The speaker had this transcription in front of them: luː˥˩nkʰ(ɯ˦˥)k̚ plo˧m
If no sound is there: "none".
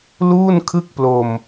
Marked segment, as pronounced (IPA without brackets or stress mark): ɯ˥˩